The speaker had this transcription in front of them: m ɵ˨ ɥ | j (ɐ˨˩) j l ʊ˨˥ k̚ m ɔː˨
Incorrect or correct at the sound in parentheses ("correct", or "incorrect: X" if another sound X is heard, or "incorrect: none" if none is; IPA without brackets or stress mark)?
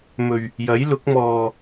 incorrect: ɐ˨˥